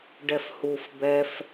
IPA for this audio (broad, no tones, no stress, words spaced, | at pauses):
ɖɛfhuf bɛf